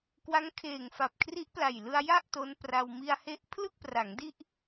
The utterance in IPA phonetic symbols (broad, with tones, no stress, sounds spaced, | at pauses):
k w a˦˥ ŋ kʰ eː˨˩ ŋ f a˨˩ p̚ kʰ r i˦˥ ʔ p l a˨˩ j l ɯ˧ a̯ j a˥˩ ʔ t o˦˥ n p r a˧ w m i˧ a̯ h e˦˥ ʔ pʰ l ɯ˥˩ k̚ p r a˩˦ ŋ d i˥˩ ʔ